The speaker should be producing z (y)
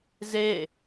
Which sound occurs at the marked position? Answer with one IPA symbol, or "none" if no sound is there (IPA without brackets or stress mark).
e